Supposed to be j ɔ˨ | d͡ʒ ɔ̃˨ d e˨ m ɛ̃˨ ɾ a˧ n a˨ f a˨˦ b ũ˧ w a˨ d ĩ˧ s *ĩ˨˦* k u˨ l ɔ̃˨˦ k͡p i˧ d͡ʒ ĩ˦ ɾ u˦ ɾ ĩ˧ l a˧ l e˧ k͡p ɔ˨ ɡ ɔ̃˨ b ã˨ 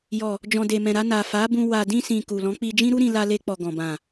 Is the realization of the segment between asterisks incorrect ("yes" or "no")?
yes